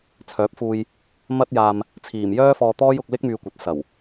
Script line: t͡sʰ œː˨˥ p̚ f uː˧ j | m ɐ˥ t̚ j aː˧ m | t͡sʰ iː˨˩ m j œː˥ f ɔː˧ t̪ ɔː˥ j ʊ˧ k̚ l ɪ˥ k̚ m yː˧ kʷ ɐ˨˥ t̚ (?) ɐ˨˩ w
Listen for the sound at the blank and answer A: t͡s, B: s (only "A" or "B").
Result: B